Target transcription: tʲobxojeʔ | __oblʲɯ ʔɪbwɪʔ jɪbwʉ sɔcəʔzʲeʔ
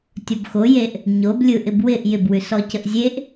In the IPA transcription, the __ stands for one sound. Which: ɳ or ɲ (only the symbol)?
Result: ɲ